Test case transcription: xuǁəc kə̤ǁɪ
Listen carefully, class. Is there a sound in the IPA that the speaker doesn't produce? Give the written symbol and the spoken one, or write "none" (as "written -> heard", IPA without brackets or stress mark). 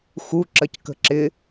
none